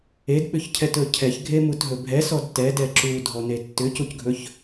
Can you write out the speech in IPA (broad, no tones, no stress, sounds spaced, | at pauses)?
e d ɓ ʏ ç cʰ ɛ t ɵ cʰ ɛ ç ɡʱ e m u t ɦ ɵ bʱ ɛ s ɔ d t ɛ d ɛ ǁ u dʱ ɔ n e tː ʏ c u c ɡʱ ɵ ç